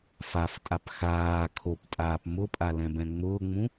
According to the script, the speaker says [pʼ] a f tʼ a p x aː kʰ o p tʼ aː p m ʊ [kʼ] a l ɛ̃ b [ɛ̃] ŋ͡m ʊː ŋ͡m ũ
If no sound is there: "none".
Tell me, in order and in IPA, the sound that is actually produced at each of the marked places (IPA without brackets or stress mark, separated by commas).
f, pʼ, ɛ̃